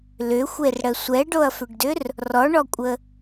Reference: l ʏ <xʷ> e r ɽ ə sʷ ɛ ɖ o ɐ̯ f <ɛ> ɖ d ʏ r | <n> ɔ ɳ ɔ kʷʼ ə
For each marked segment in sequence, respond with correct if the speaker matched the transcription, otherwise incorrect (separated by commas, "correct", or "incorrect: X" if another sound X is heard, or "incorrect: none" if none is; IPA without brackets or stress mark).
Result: correct, incorrect: ʏ, incorrect: r